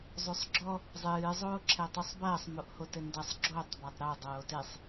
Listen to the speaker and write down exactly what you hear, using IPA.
zˤosˤɡ͡ǁɔ | zˤɨː zˤoːǁʰɛtˤusˤbɐːsˤ moʔhotɘndɐsˤ ɡ͡ǁotˤ batˤɾo dˤoːtesˤ

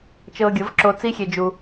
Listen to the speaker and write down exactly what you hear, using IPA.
t͡ʃɤː˧ɡʲɤ˨˦vǁo˧ t͡si˦xʲe˧d͡ʒu˧

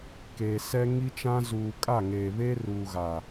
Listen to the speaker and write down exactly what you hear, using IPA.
keː˨ sɛ˦ ŋi˦t͡ʃã˦ zuː˨kʼa˦˨ŋeː˨βe˦ ruː˨ɣa˨

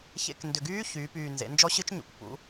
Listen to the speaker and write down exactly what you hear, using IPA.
çḛ˧k ndʏ˨˩ɡyː˦˥ çyː˩˧ pyː˨˩nzḛ˩˧nd͡ʒɔ˦˥ɕɨ˦˥t͡ʃ ɲṵ˨˩k pṵ˩˧

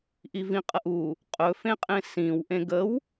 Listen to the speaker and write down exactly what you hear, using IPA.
ʔivĩqʼəʔu | qʼɵfẽqʼẽ sĩw ʔẽɡəw

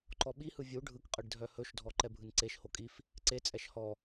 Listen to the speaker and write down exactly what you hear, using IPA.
ǃɔɓihɯ vʲu ɖʱɯkqʼɯɖ dʱœhɵʃdʱɔ ǃɛbʱɯnǀeʃho kʼif | ǀet͡sʼɛʃ hɔ

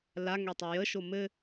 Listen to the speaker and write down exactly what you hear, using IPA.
laŋø tˤejəʃo mɘ

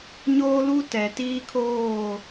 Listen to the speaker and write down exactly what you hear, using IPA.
ɲoː˦lu˦ tɛ˨ tiː˦kʰoː˦˨

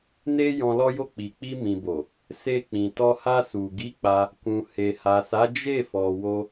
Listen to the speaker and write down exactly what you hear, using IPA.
ne˦ jɔ̃˧lɔ˦jo˦˨ k͡pi˨k͡pi˧mĩ˨bo˨ | se˧k͡pĩ˨tɔ˧ ha˧su˨ ɡi˨˦ k͡pa˧ | kũ˨he˨ha˨sa˨˦ d͡ʒe˦˨fɔ˨ wo˧

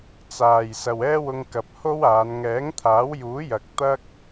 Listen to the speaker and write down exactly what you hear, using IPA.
t͡saː˨j sɐ˨wɛː˥wʊ˧ŋ kɐ˨p̚ ho˥waː˨˧n ŋɛː˨˥ŋt̪ʰaː˨˥wjuː˨˥jɐ˨k̚ t̪ɐ˥k̚

